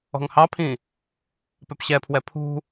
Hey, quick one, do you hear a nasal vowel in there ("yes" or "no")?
yes